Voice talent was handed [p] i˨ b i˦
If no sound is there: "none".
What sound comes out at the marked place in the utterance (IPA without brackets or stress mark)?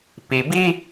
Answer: p